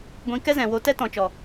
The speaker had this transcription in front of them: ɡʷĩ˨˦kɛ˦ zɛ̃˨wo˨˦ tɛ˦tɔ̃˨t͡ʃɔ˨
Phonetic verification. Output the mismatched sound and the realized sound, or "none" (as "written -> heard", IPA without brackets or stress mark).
none